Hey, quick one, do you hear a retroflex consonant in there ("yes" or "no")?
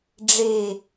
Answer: yes